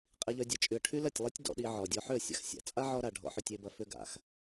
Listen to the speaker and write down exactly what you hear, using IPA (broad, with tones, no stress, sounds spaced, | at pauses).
qʼ i˦ ʎ œ˦ dʲ ɐ˦ t͡ʃʼ y˧ ə̯ ʈʰ y˦ l ɐ˦˨ tʲ lˠ i˦ tʲ d ɔ̰˧ ɗ i˧ ʕ ɔ˨ dʲ ɔ˧ ħ ʏ˦˨ ə̯ sʲ a̰˨ x sʲ a̰˨ t͡sʼ a˦ ʕ ɔ˧ ɾ a˨ ɖʱ ɔ̰˧ ħ ʏ˧ tʲ e˧ b ɐ˧ f ʏ˦ ɡ a̰˨ x